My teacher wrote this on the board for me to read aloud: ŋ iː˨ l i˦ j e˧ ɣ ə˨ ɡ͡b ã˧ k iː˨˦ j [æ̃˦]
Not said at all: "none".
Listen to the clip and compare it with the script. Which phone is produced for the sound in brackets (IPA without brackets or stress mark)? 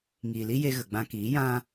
ã˦